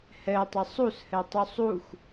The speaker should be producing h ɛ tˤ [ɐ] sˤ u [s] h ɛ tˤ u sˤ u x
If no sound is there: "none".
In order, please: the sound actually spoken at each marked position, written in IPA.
ə, s

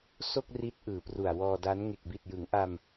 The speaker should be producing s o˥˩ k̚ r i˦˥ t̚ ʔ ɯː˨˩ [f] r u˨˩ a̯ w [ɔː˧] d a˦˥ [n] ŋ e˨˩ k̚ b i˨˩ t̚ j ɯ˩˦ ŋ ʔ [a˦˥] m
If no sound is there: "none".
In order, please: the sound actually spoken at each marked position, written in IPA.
p, ɔː˧, n, a˧

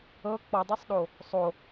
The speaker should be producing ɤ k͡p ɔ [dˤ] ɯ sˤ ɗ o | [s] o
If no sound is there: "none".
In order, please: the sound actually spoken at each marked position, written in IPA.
dˤ, sˤ

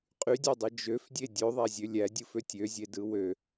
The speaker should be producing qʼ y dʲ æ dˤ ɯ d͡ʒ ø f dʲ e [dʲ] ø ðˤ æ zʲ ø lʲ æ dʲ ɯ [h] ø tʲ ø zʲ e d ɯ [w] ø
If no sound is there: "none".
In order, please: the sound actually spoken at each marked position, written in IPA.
dʲ, f, w

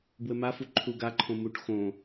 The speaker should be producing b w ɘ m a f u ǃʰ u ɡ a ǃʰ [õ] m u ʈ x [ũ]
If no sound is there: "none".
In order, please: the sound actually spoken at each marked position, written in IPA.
õ, õ

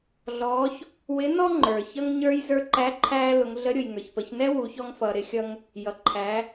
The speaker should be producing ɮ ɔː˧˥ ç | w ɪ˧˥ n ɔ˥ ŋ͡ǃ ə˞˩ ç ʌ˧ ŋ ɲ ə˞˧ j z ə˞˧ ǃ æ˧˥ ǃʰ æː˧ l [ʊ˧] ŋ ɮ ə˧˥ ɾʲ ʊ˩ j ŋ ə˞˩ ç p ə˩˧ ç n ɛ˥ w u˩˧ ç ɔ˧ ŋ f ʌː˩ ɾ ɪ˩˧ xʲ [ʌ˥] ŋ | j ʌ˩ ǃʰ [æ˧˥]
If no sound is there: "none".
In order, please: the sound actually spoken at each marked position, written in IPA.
ʊ˩˧, ʌ˧, æ˩˧

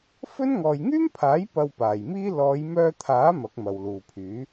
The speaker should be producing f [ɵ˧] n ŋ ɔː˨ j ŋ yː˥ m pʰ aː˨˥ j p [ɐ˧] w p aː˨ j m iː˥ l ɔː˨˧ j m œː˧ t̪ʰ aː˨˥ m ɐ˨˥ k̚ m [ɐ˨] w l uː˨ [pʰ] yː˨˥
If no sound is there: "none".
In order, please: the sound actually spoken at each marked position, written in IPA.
ɵ˥, ɐ˧, ɐ˨, pʰ

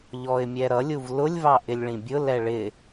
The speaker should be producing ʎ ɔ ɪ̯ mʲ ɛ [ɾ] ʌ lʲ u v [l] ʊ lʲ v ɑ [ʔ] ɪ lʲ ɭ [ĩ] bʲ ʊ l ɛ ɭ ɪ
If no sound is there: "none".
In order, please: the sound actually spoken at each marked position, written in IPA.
ɾ, l, ʔ, ĩ

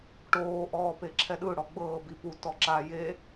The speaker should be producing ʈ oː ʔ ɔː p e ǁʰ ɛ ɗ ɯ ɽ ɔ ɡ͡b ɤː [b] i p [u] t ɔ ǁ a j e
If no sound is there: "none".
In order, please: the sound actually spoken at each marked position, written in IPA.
b, u

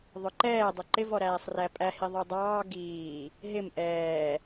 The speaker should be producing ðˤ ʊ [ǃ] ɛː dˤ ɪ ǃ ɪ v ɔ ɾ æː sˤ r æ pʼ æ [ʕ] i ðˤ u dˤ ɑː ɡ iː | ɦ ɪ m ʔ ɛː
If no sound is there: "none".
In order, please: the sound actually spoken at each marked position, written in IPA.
ǃ, h

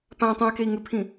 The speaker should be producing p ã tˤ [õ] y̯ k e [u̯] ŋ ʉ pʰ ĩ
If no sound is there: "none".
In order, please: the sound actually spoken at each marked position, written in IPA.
ũ, i̯

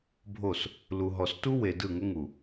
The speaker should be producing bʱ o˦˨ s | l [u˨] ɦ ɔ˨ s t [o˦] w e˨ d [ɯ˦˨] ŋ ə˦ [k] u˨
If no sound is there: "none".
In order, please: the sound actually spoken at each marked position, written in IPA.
u˨, u˦, ɯ˦˨, ŋ

